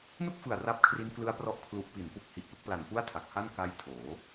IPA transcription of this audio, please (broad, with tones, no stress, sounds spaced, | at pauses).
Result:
n u˥˩ k̚ f ɯ˨˩ a̯ r a˦˥ p̚ kʰ r i˦˥ n k l ɯ˦˥ a̯ p r ɔ˦˥ ʔ kʰ l u˨˩ ʔ p i˩˦ n p u˨˩ k̚ h i˨˩ ʔ p ɯ˦˥ k̚ p l a˨˩ n p u˥˩ a̯ tʰ a˨˩ k̚ h a˥˩ n k a˦˥ j tʰ oː˩˦